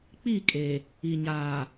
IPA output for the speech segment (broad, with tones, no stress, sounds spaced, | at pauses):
k͡p i˦˨ kʼ e˨ | i˨ ɲ aː˨